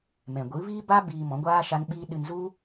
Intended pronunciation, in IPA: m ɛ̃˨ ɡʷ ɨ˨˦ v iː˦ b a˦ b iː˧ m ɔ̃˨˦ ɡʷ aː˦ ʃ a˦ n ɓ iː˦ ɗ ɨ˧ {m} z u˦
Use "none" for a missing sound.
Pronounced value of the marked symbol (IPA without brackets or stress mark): n